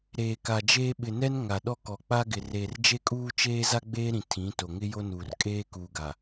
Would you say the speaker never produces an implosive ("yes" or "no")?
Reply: no